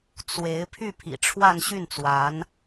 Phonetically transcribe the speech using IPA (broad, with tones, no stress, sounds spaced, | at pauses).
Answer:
t͡s w e˧˥ ɪ̯ pʰ y˥˩ pʰ ḭ˨˩ ʈ͡ʂʰ w a˥˧ n ɕ y˥˩ n t͡s w a˧˥ n